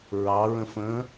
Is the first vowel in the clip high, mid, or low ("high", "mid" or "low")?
low